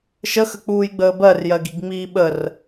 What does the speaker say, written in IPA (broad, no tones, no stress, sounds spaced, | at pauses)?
ʃ ə x ə k͡p uː j ɡ͡b əː b ɜ r j ɜ ɡ i ɡ ŋ͡m iː ɓ ə r